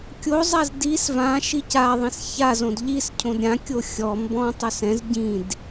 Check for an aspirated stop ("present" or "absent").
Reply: present